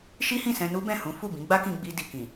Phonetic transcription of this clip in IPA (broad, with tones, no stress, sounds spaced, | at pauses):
ʃ i˦ h ĩ˦˨ s ɛ̃˧ n u˦ b ɛ̃˦˨ h ũ˨˦ f u˦˨ b ĩ˨˦ ɡ͡b a˦ k ĩ˧ ɡ͡b i˧ d i˨ k ĩ˨